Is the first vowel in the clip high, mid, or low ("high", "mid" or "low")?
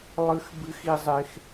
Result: high